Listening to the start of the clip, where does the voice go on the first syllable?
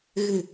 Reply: low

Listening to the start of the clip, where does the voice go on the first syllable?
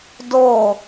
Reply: falling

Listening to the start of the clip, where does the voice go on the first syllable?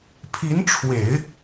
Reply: rising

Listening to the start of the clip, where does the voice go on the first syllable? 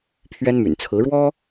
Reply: high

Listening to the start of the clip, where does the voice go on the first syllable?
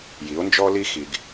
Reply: rising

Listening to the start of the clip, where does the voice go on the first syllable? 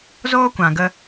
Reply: high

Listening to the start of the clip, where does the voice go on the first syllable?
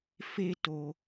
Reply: high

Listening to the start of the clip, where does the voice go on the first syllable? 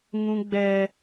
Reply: high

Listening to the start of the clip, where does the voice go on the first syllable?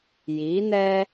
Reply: rising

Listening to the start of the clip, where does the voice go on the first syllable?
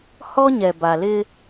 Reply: high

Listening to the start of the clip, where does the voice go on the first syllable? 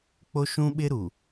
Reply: high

